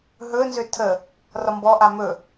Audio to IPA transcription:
ɦ ɵ n z ø tʰ ə | r ɒ m b ɔ ʔ a m ɵ

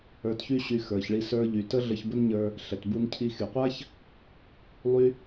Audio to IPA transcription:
ə˞˧ t ç y˥ ɕ y˧ x ə˞˩ ç ɭ i˧ s ə˞˧ ʎ y˩ t ə˥ ɮ ə˧ ç b ə˥ n ɲ ə˞˧ | ɬ ɛ˩ t b u˧ n cʰ i˧ x y˩ qʷ a˥ ç | lˠ y˥

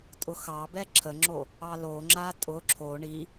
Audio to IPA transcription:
tʼ ʊ x ɑ b ɛ ǁʰ ə ŋ͡ǁ o | ɑ l o ŋ͡ǁ a tʼ ʊ ǁʰ o ɳ i

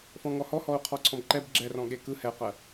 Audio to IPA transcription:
f ɔ̃ ŋ ɔ h ɔ h ɔ u̯ qʰ ɔ ǀʰ ɔ̃ b ǃ ɛ b ɡ͡ǁ ɛ r ɔ̃ ɠ e k ɯ h ɛ q ɜ

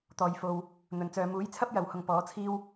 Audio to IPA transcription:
t̪ ɔː˨ j f o˨ w | n̪ ɵ˨˩ n t͡s œː˨ m uː˨˥ j t͡sʰ ɐ˥ p̚ j ɐ˨ w h ʊ˧ ŋ p ɔː˨˥ t͡sʰ iː˥ w

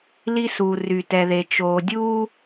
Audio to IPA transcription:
l i˦ s uː˨ r y˨ t ɛ˨ ð e˨ t͡ʃ oː˨ dʲ uː˦

